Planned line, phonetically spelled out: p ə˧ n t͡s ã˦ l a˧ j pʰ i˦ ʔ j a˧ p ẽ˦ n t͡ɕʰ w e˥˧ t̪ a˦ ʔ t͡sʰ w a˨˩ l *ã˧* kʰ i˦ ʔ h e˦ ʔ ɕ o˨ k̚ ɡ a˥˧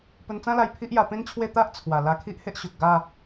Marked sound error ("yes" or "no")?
yes